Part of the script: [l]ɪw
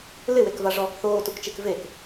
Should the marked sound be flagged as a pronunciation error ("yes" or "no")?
no